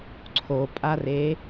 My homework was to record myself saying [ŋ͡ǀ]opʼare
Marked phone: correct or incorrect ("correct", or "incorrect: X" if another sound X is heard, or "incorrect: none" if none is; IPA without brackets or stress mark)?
incorrect: ǀʰ